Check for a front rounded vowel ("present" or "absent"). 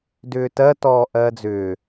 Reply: present